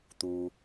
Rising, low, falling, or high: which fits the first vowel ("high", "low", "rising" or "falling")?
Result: low